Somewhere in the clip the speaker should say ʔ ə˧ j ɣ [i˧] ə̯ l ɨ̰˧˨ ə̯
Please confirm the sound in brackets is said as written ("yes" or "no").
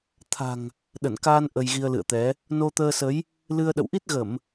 yes